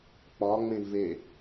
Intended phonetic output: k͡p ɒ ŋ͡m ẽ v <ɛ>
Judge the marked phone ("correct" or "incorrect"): incorrect